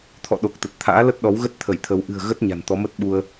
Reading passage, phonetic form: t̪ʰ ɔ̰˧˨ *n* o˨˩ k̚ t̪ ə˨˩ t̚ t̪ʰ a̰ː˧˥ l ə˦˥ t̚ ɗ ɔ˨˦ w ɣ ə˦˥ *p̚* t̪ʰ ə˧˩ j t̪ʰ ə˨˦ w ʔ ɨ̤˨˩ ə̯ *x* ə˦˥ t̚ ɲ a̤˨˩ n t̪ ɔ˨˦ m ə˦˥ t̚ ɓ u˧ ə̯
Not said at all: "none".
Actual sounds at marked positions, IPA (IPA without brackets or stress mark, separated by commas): ɗ, t̚, ɣ